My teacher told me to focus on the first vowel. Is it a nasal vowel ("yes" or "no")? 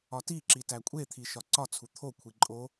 no